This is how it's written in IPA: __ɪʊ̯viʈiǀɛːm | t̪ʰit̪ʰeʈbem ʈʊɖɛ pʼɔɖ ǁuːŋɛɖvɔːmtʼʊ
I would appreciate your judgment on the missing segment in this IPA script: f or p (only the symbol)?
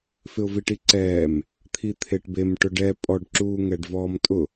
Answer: f